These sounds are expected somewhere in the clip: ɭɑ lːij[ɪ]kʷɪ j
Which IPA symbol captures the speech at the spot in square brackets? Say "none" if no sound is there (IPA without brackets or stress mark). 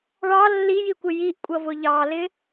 i